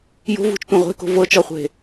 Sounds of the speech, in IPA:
jo̤vṳt͡ʃtʷɐ̃ ʁʷe̤ko̤ vɤt͡ʃɔχʷe̤

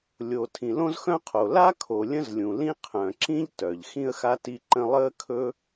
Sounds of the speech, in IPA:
lʲo˩ tʰĩ˩lõ˥zxœ̃˥qʰo˩ la˥kʰo˩ lʲə̃˥zlʲũ˩lĩ˥ qʰœ̃˩ǁĩ˥ʎ tœ˩ʎ xĩ˥ə̯xa˥ ti˥ǃə̃˥ lˠəː˥ kʰɵ˥

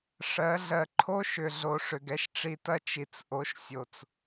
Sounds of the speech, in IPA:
ʂɜ˨˦ɮɜ˧ ǃʰo˦ʃʏ˨ ɮo˨ʂʏ˨ɡɛ˦ʃ ʈ͡ʂi˧tɐ˦ t͡ʃi˨t͡s ʔo˨˦ʃ sʲo˨t͡s

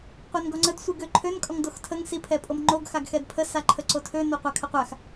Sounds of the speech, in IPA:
qʷɛnɡɔŋ͡ǀəd sʷiɡøǃʰøn kʼɔŋdoxtʰəŋ sipʰɛpʼomŋ͡ǃoɡ xaɡxɛdpʰə saǃʰəǀotʰø noqʷakʰəqʷax

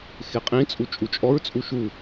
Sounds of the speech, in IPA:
xeqʼĩt͡sʼu t͡ʃʼut͡ʃʼɔɹt͡sʼu ʃu

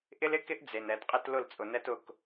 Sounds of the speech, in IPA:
ʔɪ˦lɪ˦kɪ˦ʔ d͡ze˨nɛ˨dqʼɪ˦t lʊ˦˨lt͡sʼʊ˨nɛ˦t ʊ˦˨k

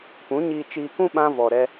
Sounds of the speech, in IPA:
pũ˨˦ɲiː˧t͡ʃiː˧kũ˦ ɓã˦vɔ˧ ɾɛ˦

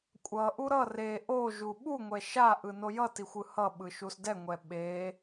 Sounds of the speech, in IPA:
kʷʼʌʔu ɾʌ re ʔoʒu ɓuŋʷɛ ʃaʔɯ nojʌtixʷ ɯhʌɓɯ ʃusdɛŋʷɛ ɓe

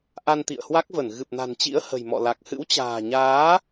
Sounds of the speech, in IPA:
ʔa˧nt̪ḭ˧˨ə̯hwa˦˥k̚və˧˩n ɣɨ˨˩p̚na̤˨˩nt͡ɕḭ˧˥ə̯ hə̤˨˩jmɔ̰˧˨la˨˩k̚ hɨ̰˧˥wt͡ɕa̤ː˨˩ɲaː˨˦

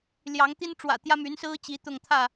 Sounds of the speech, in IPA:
ljɑ˨˦ŋt̪i˦nʈ͡ʂwä̰˨˩ t̪jä˦my˨˦nsɹ̩˦ t͡ɕi˨˦t̪ʊ˥˨ŋ t̪ʰä˥˨

